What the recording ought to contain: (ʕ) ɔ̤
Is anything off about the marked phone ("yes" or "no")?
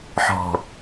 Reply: yes